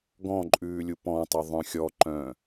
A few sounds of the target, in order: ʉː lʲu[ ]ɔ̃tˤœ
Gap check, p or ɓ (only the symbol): p